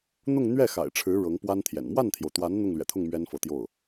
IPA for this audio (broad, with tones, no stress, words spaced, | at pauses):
n̪ʊ˥˧ŋn̪ɥɛ˥˩ xa̰˨˩ɪ̯ʈ͡ʂʰɻ̩˧˥ ɻɤ˧˥ŋpwa˥nt̪ʰjɛ̰˨˩n mwa˥˩nt̪ʰjo˩ʊ̯t̪wa˧˥n n̪ʊ˥˩ŋlɥɛ̰˨˩t̪ʰʊ˥˩ŋ mɥɛ˥nfɤ˧˥t̪jo˥˩ʊ̯